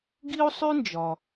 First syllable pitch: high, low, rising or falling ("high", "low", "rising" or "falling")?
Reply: high